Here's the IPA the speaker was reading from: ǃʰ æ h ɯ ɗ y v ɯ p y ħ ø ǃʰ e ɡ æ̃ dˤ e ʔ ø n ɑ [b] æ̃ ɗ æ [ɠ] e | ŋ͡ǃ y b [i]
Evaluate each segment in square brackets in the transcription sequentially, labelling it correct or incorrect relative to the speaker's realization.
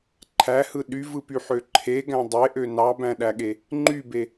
correct, correct, incorrect: e

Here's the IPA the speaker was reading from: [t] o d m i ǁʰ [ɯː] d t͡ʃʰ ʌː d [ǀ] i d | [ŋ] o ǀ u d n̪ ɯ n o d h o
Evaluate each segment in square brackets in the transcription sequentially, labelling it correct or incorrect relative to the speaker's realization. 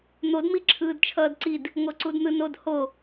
incorrect: n̪, correct, correct, correct

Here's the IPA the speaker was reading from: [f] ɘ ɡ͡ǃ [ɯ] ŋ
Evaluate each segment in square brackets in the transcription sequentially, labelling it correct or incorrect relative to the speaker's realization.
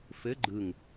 correct, correct

